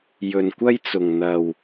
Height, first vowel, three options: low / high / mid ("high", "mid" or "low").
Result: mid